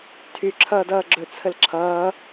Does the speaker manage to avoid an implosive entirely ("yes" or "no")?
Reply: yes